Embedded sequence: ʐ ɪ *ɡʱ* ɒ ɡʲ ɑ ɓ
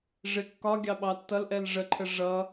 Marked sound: incorrect: kː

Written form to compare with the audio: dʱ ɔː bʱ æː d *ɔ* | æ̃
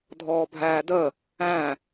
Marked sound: incorrect: ə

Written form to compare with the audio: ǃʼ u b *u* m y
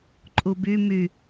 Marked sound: incorrect: y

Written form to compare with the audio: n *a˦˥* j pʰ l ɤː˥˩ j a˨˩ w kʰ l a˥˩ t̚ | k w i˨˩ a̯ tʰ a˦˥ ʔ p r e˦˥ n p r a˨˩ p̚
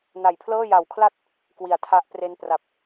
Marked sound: incorrect: a˨˩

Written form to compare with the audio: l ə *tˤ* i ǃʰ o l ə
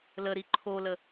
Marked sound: incorrect: ɾ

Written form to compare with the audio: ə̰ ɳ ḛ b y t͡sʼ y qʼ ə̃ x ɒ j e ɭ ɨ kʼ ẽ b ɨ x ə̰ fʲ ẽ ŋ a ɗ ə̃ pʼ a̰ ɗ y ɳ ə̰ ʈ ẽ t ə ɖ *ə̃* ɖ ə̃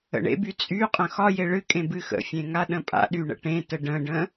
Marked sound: correct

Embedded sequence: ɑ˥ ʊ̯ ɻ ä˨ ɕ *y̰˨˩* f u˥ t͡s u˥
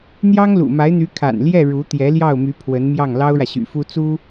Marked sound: correct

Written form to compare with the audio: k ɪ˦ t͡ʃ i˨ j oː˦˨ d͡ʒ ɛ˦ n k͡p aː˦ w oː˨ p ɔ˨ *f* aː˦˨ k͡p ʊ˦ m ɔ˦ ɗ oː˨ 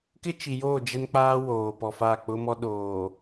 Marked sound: correct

